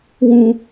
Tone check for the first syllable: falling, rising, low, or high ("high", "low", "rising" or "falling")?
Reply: high